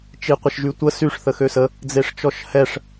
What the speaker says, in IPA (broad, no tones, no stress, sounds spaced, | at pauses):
t͡ʃ i qʷ ə ʃ ʒ y tʷ ə s y ʂ θ ə x ø s ə | d͡z e ʂ t͡ʃ ɔ ʃ h ɛ ʂ